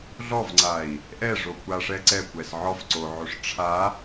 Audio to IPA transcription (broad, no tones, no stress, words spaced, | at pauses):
ɮɔvŋ͡ǀai̯ | ʔɛʐokʷaʂɛ ǀɛkʷɛs ʕɔf ǀoʕoʂ ʈ͡ʂʰa